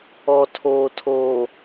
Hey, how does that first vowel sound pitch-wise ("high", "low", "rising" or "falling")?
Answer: low